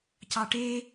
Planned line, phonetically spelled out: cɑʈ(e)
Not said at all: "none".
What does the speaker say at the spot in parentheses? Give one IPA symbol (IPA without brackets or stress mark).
e